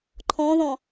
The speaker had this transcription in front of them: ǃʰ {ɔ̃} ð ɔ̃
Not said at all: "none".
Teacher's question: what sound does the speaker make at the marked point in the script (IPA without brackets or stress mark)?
ɔ̃